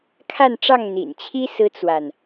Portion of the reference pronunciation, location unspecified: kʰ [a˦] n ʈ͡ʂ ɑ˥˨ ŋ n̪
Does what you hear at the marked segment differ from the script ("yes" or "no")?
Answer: yes